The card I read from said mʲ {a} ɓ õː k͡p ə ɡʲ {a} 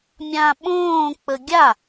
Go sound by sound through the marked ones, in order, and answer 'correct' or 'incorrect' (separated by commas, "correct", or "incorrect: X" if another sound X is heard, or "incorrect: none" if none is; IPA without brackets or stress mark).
incorrect: ã, correct